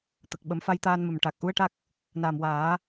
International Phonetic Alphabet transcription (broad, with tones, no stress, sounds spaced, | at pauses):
t̪ ə˨˩ k̚ ɓ ə˨˩˦ m f a˧ j t̪ aː˧ n m ə˨˩ m ʈ aː˨˩ k̚ ʔ u˧˥ ə̯ ʈ a˦˥ k̚ | n a˨˩ m w aː˨˩˦